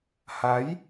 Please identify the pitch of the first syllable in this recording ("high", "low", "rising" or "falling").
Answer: rising